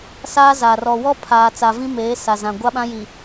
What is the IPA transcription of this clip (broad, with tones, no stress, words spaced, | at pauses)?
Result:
saː˦zaː˨r ɔ˨wɔ˦pʰaː˨t͡sa˨ vĩ˦meː˨˦ sa˨zã˨ ɡʷa˦ɓã˦ ji˨